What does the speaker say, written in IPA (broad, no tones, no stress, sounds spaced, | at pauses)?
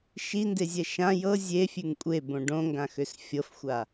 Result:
ʃ i n d e zʲ ɛ ʃ ã j ɤ zʲ e fʲ ʉ ŋ kʷʼ e b õ ɖ õ ŋ ɡ ã x ø s fʲ ɤ f xʷ a